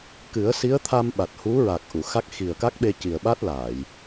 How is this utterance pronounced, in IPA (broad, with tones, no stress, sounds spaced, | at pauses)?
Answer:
k ɨ˨˩˦ ə̯ s i˧˥ ə̯ t̪ʰ a˧ m ɓ a˨˩ t̚ h u˧˥ ɹ a˨˩ k̚ ʔ u˨˩˨ x a˦˥ k̚ x i˨˩ ə̯ k a˦˥ k̚ ɓ e˧ c i˨˩ ə̯ ɓ a˦˥ t̚ l aː˨˩˨ j